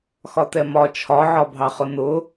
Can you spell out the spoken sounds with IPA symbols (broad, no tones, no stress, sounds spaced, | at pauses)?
x ɒ t ɛ m ɒ t͡ʃʰ ɒ ʕ ɒ bʱ ɑ χ ʊ n ʊ